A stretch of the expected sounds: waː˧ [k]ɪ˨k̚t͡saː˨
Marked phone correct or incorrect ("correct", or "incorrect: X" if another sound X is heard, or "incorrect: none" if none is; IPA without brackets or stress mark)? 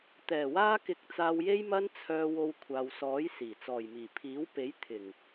correct